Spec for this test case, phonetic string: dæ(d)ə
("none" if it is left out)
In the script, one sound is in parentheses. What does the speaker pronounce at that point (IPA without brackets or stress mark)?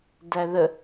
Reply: ð